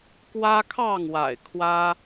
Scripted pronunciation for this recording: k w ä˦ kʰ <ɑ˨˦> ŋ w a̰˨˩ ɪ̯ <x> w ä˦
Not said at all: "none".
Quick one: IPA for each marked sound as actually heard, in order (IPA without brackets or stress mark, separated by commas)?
ɑ˥˨, kʰ